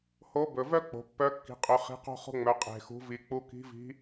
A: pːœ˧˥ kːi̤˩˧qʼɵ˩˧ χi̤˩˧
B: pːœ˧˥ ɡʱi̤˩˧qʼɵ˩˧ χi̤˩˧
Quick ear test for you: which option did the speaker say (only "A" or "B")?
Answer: A